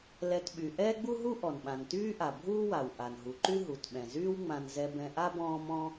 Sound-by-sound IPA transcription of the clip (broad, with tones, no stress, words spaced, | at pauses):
lɛ˧tɓy˩ ʔɛː˥ɡ͡bu˥ɦu˥ ʔɔ˩nɓã˩ntyː˥ʔa˩ bʱuː˥wa˩w ʔa˩nɦu˩ ǃy˥ ɦu˩tɓɛ̃˩zyː˥w ŋ͡mã˧n zɛ˧bɛ̃˧ʔa˥ bɔ̃ː˥ mɔ̃˥